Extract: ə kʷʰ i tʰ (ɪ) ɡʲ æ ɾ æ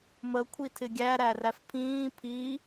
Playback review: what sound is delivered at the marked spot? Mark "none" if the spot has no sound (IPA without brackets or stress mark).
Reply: ɪ